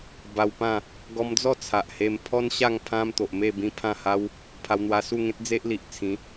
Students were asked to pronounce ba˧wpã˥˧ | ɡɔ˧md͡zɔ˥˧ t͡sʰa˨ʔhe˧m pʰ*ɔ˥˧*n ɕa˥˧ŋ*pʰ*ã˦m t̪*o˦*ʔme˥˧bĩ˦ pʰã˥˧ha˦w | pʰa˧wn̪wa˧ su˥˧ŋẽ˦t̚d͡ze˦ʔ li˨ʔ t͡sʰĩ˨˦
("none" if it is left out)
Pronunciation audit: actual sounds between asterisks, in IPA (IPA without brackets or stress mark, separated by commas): ɔ˦, pʰ, o˨